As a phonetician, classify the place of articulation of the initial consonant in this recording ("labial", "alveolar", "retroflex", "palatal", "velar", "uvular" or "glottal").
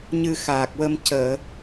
palatal